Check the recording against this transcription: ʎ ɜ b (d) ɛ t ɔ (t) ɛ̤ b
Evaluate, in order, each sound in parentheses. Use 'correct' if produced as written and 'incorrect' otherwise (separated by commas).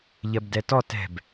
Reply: correct, correct